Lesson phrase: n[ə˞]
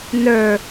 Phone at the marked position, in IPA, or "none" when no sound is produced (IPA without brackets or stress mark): ə˞